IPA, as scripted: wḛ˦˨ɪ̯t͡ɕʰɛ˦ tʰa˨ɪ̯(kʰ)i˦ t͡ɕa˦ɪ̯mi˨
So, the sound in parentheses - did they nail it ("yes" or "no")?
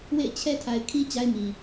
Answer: yes